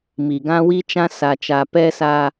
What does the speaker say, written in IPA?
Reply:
m i˨ ɡ ã˦ w i˦ t͡ʃ ã˦ s a˨ t͡ʃ a˨ p ɛ˦ s a˦

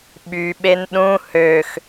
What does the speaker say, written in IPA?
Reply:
ɓ y ɓ e n ɗ ũ h ø x

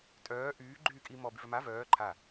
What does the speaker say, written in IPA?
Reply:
tʼ œː ʔ yː ɡ͡ǃ yː kʼ i m ɔ b y v œ m a v œː ǃʰ a

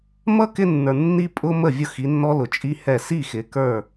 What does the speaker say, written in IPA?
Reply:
m ʌ˦ k ɪ˦ nː ə˞˨ nː i˦ pʼ ʊ˦ m ə˦˨ vʲ ʊ˦ x i˨˦ nː ɔ˦ l ʊ˨ t͡ʃʼ i˦ h ɛ˦˨ s i˦˨ x ɪ˨ k ə˞˦˨

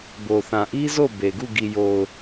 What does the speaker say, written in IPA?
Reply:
b o˨ θ ã˨ ʔ i˦ z o˦˨ b e˨ ɡ u˦˨ ɡ i˨ j o˨ ʊ̯

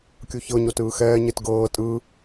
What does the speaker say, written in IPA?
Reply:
kʲ u ç ɤ ɲ o t ɯː x ɛː ɲ e t ɡ ɤː tʼ ɯ

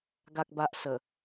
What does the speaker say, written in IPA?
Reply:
ɡ a˨ k̚ b a˨ ʔ s ə˨˩

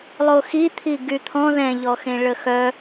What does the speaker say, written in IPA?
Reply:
lˠ o x i t̪ʰ i ɡ y t̪ʰ ɔ̃ ð ɛ̃ ʎ ɔ x ẽ ɭ ə x œ

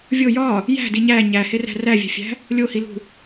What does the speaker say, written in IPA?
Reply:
vʲ o j ɒ | j æ̤ d i ɲ æ ɲ æ h e r æ̤ r æ vʲ æ̤ fʲ æ̤ | lʲ o h i l ṳ

